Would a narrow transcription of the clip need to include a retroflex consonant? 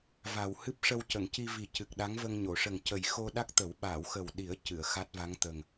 yes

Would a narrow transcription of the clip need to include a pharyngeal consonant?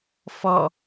no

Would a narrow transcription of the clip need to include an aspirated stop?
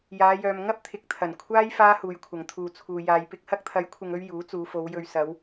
yes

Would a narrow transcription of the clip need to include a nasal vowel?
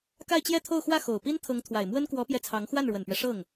no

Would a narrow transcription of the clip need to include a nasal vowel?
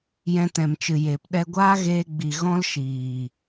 yes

